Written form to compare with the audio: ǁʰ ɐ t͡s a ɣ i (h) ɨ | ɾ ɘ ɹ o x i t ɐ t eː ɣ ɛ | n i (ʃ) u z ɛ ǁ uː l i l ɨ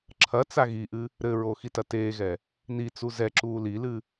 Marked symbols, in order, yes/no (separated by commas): no, no